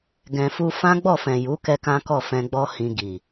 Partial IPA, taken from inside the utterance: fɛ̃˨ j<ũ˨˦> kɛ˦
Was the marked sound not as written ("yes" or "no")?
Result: yes